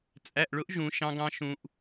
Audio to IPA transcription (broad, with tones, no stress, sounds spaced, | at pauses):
t͡sʼ æ˩˧˩ ʔ ɭ ʊ˨˥ ʔ ʒ ũ˩˧ ʃ ɑ̃˦˥ ɡ ɑ̃˦˥ ʃ ũ˩˧ ʔ